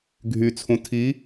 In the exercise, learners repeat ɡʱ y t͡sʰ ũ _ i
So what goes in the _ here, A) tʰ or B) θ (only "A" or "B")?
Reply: A